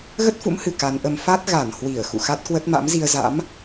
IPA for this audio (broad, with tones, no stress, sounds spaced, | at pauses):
ɣ ə˦˥ t̚ f ṵ˧˥ m h ɨ˨˩ k a˨˦ n ʔ ə˧ m f a˦˥ t̚ ɣ a˧˩ n h w i˧˩ ə̯ x ṵ˧˨ x a˦˥ t̚ k w ə˦˥ t̚ m a̰˧˥ m z i˧ ə̯ z a̰˧˥ m